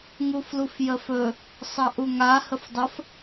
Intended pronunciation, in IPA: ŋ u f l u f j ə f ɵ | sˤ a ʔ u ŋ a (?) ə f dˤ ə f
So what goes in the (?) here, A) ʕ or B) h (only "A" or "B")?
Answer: B